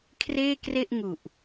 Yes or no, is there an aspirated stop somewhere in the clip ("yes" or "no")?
yes